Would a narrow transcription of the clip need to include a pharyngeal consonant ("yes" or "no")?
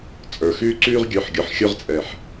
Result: yes